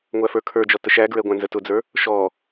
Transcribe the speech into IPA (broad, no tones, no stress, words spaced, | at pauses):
ŋʷæfə˞kʰə˞d͡ʒɔ təʃæɡɹɛ ɡʷæ̃nzətʊd͡zə˞ | ʃɔ